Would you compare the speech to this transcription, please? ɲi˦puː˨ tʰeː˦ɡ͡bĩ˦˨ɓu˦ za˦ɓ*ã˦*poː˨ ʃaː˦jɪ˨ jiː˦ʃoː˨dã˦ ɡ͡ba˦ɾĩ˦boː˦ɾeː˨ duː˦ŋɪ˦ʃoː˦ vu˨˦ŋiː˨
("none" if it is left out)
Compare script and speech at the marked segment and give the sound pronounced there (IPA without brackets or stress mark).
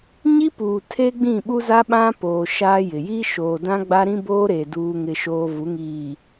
ã˦